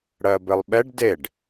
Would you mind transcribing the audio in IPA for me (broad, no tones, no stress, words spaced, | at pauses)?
ɽɜbɘlˠɓɛɖ deɖ